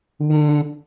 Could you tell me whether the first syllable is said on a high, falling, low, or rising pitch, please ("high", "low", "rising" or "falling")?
high